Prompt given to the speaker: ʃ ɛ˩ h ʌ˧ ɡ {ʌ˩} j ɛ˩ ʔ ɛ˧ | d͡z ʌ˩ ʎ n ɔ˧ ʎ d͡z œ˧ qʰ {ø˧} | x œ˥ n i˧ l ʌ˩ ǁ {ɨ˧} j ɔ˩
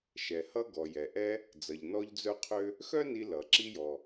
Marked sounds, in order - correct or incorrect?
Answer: incorrect: ɔ˩, correct, incorrect: i˧

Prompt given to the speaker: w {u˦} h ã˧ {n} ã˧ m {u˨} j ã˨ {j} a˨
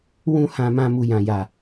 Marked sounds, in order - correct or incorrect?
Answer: incorrect: ũ˦, incorrect: m, correct, correct

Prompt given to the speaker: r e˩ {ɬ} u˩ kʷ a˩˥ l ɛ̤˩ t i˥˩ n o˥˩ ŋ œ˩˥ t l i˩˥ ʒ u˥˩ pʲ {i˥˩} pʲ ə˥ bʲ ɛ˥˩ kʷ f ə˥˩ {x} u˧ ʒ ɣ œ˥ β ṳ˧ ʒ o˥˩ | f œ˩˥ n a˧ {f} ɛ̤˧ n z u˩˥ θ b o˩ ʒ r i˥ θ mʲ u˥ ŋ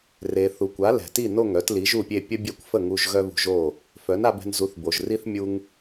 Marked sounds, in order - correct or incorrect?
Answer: incorrect: θ, incorrect: e˥˩, incorrect: ŋ, incorrect: b

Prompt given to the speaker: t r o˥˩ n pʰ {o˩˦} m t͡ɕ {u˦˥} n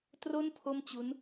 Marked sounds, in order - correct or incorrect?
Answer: incorrect: o˥˩, correct

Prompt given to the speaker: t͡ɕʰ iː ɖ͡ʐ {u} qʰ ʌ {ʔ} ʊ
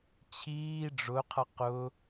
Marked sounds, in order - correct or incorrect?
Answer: incorrect: ʊ, incorrect: q

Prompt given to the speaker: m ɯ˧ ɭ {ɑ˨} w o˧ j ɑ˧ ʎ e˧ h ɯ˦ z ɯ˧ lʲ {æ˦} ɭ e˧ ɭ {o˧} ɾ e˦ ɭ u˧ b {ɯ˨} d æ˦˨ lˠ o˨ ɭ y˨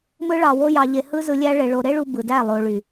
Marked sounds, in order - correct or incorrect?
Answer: correct, correct, correct, correct

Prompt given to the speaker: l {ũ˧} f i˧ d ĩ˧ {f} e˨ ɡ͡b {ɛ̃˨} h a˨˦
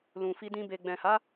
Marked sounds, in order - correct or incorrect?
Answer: incorrect: ũ˨, incorrect: b, correct

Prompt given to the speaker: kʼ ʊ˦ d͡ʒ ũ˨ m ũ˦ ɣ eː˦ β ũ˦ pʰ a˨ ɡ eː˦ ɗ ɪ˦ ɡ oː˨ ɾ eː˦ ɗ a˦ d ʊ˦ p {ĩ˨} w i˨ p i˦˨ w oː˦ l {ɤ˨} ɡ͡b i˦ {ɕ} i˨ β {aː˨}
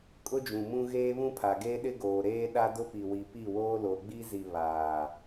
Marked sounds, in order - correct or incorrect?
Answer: incorrect: i˨, incorrect: o˨, incorrect: z, correct

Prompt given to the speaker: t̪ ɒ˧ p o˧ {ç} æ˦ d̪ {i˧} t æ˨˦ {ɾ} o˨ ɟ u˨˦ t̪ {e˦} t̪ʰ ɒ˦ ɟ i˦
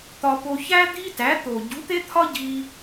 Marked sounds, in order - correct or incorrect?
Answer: correct, incorrect: i˦, incorrect: t̪, correct

